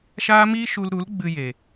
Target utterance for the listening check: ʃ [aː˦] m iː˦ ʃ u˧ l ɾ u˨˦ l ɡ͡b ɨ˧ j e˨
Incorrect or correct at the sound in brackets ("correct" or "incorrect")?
correct